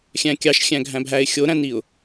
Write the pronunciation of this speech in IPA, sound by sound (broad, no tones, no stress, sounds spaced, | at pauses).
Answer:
xʲ æ̃ kʲ ɑ ʃ xʲ æ̃ ɡʱ æ̃ bʱ æ ɪ̯ xʲ o ɾ æ̃ n i ʊ̯